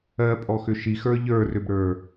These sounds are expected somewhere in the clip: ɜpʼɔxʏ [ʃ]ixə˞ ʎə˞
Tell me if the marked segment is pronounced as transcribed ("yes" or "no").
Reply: yes